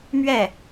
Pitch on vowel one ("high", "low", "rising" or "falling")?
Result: falling